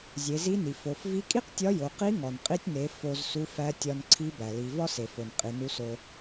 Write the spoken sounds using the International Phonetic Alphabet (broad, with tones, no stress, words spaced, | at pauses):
zʲe˩˧zi˧˥ni˩ fo˩˧f vi˧˥kʼi˥qtʲɒ˧˥jo˩˧ qi˧˥ŋɒ˩nqʼi˧tʲne˩˧ fo˧z su˧˥fæ˧˥tʲɒ˧nǀʰi˧˥ bæ˩li˩˧ vɒ˥se˩fo˩n qʼi˩˧nu˧˥so˧